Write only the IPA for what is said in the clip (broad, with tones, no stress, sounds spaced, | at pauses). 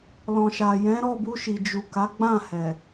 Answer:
l ɔ̃˨ ʃ a˨ j ɛ̃˨˦ ɾ ɔ˦˨ b u˧ ʃ i˨ d͡ʒ u˨ k a˨˦ ɡ͡b ã˦˨ h ɛ˨